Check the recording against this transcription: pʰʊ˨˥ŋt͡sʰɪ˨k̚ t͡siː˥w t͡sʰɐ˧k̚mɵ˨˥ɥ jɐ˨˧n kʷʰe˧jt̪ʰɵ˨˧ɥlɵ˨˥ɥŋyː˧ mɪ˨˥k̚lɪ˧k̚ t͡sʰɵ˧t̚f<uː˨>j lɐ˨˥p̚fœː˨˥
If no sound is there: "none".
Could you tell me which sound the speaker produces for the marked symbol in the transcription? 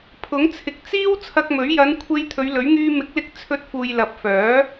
uː˨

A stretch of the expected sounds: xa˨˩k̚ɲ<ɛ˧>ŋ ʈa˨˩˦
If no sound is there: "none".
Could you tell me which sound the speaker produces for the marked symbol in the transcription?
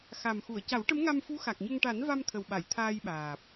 ə˧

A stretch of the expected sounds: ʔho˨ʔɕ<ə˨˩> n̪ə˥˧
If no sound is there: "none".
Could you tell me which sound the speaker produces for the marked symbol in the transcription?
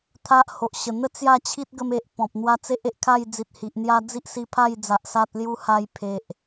ə˨˩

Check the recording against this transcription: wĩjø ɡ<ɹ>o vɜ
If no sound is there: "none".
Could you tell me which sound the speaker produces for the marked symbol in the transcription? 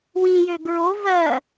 ɹ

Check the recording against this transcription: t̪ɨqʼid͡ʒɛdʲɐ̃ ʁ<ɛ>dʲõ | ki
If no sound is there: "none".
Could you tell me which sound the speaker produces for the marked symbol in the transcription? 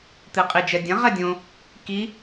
ɛ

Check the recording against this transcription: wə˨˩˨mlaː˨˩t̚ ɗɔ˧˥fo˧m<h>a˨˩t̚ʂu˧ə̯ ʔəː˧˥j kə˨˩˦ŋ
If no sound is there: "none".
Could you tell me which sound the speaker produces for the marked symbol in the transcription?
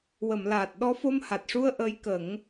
h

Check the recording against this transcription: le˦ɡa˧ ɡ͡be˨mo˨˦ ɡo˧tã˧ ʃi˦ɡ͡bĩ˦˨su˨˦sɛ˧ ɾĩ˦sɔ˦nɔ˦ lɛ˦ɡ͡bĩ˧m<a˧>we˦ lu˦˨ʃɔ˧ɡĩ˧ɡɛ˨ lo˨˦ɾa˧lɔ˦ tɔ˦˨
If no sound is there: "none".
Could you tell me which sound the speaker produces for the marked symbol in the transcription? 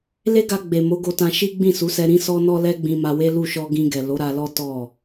a˧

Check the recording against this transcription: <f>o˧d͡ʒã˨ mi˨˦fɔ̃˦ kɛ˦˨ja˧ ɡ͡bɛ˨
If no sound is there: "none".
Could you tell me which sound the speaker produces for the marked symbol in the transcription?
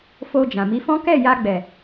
f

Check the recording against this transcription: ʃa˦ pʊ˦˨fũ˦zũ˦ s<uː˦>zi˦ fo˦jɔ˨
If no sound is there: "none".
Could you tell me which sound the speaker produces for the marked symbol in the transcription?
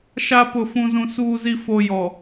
uː˦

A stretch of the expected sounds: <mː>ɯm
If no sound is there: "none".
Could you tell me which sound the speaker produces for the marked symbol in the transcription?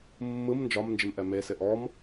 mː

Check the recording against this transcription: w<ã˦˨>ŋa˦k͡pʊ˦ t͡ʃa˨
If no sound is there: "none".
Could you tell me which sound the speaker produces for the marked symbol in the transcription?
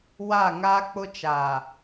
a˦˨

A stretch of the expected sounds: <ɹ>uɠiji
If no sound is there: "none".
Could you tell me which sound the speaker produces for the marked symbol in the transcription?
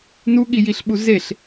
n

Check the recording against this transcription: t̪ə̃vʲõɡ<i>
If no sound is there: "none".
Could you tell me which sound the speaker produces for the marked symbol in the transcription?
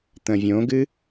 ɨ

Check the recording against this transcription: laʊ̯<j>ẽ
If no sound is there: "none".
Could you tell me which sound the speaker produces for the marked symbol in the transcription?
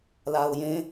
j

